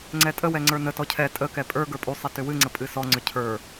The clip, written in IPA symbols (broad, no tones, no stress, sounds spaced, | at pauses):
ŋ͡ǀ ɛ tʼ ə w ɛ ŋ͡ǀ ə˞ n ə t ɔ cʰ ɛ tʼ ə k ɛ pʼ ə˞ ɡ ə˞ pʼ u sˤ ɛ t ʏ w ɨ ŋ͡ǀ ə pʼ ɨ s ɔ ŋ͡ǀ ʏ cʰ ə˞